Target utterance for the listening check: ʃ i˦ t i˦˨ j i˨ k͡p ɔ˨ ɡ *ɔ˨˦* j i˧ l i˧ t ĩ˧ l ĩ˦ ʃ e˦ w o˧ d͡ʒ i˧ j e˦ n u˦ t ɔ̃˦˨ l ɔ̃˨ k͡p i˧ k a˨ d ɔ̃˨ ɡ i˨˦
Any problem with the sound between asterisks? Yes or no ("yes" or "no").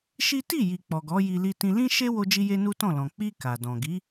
no